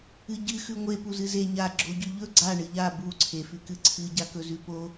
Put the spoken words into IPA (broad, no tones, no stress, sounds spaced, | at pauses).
ɨ ɟ ɨ x ʉ ŋʷ e p u z ɨ z e ɲ a ɡ͡ǁ o ɟ ʉ ʎ ɵ ɡ͡ǀ a ɳ ɨ ʎ a b u ǀʰ e f ʉ k ɨ ǀʰ ɨ ɟ a k ɵ z ʉ p o